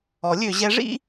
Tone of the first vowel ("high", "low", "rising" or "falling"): low